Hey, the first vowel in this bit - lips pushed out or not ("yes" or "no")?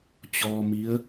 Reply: yes